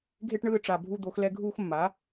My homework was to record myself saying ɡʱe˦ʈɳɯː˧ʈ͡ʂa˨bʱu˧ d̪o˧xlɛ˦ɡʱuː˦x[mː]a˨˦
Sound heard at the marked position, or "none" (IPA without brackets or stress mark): mː